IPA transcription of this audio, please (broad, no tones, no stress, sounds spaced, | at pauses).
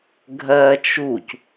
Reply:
ɡʱ ɜ t͡ʃ u c